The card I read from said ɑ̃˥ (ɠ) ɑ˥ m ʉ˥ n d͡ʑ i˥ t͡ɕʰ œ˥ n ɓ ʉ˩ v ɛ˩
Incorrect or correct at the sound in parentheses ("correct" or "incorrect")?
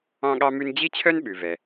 correct